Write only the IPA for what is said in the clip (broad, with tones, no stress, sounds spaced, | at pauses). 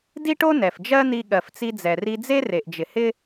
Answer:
d i˥ ʈ o˥ n ɛ˩ f d͡ʒ ɜ˥ n̪ i˧ ɠ ɜ˩ f t͡s i˧ d͡z ɛ˩ r i˧ d͡z e˥ r e˩ ʔ d͡ʒ ɪ˩ h ɪ˥